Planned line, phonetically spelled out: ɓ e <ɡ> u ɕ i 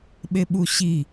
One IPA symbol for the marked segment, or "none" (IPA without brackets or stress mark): ɓ